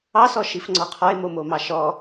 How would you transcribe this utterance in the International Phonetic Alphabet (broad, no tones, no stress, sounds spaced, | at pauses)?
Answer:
ɑ s ɔ ʃ i f ŋ͡ǀ ɔ qʰ ɔ e̯ m o m o m ɑ ʃ ɔ